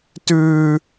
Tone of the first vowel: high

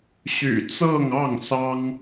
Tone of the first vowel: low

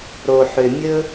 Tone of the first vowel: low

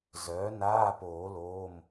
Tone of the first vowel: rising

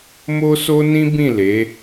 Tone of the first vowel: high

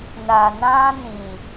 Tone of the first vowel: low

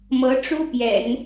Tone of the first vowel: rising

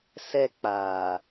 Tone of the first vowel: high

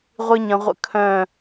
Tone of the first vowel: high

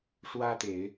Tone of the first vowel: high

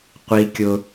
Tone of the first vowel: low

